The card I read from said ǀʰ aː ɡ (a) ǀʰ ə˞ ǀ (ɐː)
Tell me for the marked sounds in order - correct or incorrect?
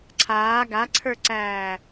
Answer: correct, incorrect: æː

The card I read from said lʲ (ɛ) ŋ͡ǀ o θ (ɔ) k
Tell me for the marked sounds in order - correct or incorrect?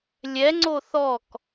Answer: correct, correct

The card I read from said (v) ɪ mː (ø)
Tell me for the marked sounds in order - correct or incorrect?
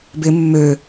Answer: incorrect: b, correct

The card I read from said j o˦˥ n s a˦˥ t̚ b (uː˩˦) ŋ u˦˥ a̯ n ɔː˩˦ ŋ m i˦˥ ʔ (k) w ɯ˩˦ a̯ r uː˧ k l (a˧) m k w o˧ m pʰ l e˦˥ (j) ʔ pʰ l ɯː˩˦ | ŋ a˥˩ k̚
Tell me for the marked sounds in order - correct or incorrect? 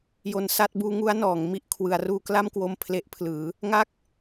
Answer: incorrect: uː˦˥, incorrect: kʰ, incorrect: a˥˩, incorrect: none

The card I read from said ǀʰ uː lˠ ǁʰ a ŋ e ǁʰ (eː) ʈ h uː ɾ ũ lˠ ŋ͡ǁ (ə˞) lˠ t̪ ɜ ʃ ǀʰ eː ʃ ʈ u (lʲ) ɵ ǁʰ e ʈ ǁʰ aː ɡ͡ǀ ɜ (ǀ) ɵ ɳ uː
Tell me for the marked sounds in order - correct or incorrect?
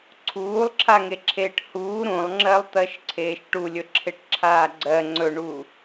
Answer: correct, incorrect: ɜ, correct, incorrect: ŋ͡ǀ

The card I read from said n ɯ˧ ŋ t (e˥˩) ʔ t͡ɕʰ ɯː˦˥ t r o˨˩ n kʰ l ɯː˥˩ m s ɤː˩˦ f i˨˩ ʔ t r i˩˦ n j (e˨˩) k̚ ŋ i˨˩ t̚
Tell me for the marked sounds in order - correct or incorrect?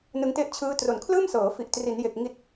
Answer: incorrect: e˦˥, correct

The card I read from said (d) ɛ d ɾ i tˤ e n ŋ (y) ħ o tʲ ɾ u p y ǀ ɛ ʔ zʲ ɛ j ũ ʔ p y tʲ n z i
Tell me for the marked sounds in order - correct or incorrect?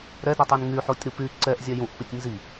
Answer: incorrect: ɾ, correct

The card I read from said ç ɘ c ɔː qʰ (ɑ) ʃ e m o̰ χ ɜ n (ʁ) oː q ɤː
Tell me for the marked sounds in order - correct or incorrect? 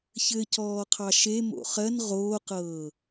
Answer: correct, correct

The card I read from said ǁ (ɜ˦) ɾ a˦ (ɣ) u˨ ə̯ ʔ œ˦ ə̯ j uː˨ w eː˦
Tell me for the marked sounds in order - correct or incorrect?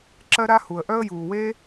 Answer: correct, incorrect: h

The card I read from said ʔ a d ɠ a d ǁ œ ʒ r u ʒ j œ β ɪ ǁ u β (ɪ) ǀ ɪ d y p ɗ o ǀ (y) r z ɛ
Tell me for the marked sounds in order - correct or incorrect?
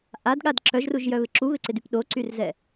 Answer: correct, correct

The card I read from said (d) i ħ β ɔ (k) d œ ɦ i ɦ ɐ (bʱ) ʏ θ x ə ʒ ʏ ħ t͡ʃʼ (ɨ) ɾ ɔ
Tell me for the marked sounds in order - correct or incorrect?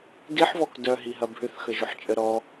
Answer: correct, correct, correct, incorrect: ə

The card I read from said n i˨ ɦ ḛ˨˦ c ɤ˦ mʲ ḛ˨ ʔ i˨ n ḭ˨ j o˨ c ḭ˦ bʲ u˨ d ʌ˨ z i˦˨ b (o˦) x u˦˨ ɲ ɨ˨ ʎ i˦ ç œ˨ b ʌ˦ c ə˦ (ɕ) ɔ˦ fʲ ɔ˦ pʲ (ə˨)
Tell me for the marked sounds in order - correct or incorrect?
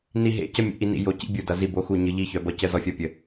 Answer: correct, incorrect: z, correct

